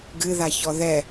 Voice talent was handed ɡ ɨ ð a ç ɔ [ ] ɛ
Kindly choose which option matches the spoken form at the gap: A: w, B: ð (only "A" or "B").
B